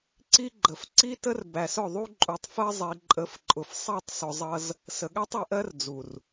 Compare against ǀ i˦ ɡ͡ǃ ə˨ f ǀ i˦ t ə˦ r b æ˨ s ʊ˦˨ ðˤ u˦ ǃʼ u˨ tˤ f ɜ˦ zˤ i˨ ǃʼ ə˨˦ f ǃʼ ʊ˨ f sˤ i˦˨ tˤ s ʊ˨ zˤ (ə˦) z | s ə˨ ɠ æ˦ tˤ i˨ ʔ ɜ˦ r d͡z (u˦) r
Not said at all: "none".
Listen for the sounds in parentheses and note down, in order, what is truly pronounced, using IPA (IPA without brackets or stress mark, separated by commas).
ʌ˦, u˨